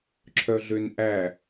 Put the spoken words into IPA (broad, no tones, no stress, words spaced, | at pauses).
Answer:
ǁʰœɮønʔæ